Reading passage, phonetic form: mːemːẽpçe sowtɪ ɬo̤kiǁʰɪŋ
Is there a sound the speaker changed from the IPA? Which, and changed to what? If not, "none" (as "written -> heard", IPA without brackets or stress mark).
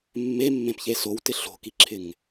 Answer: none